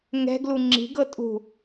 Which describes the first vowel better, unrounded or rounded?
unrounded